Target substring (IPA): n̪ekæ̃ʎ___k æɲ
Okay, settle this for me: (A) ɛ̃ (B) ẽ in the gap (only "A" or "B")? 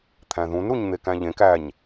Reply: B